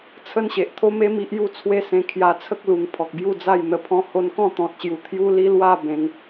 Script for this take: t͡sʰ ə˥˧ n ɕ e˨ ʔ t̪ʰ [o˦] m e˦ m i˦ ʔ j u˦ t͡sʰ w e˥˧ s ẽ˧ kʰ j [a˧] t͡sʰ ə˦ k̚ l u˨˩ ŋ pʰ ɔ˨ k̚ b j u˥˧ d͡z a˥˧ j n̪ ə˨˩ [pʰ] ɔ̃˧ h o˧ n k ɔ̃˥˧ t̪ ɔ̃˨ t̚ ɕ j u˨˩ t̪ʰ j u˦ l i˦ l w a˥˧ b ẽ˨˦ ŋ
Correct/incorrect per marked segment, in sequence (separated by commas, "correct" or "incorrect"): correct, correct, correct